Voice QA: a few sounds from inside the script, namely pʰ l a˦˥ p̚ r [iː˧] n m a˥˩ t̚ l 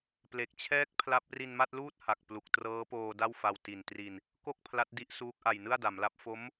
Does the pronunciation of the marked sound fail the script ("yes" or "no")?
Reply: yes